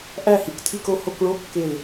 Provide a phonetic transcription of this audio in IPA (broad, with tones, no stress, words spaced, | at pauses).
ʔæ˦˨hi˨k tʰi˦˨ko˦˨ ho˦˨kɭo˧˥˧ kːe˦˨l